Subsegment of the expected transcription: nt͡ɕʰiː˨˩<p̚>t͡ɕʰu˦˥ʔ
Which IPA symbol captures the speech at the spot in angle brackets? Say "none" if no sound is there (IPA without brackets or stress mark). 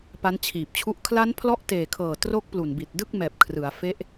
p̚